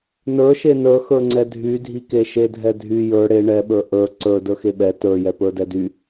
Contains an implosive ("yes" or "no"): yes